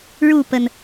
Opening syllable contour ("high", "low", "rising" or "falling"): falling